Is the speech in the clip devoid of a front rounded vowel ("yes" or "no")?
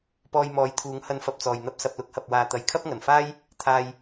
yes